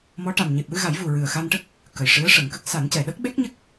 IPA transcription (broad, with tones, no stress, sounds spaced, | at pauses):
m ɔ˧˥ ʈ a˨˩ m ɲ e˨˩ p̚ w ɨ˧ ɣ a˨˩˦ j v u˨˩ ɹ ɨ˨˩ ə̯ x a˧ n ʈ ə˦˥ k̚ | k ə˨˩ j ʂ ɨ˧˥ ə̯ ʂ ə˨˩˦ ŋ k ə˦˥ k̚ s a˨˩˦ n c ɛ˨˩ ɗ ə˦˥ k̚ ɓ e˦˥ k̚ ɲ ə˦˥ k̚